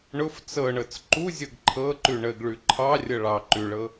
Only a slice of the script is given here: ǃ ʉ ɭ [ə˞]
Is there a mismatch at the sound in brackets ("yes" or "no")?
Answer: yes